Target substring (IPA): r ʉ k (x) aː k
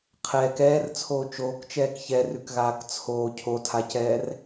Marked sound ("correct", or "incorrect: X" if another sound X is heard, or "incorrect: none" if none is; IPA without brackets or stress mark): incorrect: ɣ